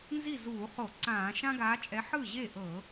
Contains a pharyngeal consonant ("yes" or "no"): yes